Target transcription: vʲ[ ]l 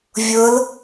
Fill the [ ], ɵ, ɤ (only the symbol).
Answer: ɤ